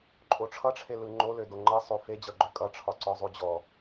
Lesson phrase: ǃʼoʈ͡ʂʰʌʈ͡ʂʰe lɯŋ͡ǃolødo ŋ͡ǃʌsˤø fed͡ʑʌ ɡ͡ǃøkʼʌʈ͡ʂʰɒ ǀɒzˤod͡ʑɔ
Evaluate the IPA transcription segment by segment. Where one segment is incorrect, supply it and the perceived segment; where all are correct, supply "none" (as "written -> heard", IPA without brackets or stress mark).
none